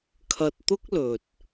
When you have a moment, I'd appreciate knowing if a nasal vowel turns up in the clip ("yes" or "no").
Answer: no